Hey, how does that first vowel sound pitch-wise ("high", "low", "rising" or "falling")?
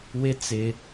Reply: high